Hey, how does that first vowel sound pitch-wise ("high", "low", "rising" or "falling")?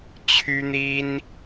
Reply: high